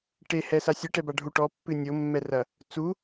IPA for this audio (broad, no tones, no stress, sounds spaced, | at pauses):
ʈ e h ɛ s a sʲ ɨ ʈ ɛ b a ɖʱ u ʈ ɔ pː ɨ nʲ o mː ɛ r ɐ | t͡s u